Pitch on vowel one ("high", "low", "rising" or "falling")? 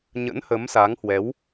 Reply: rising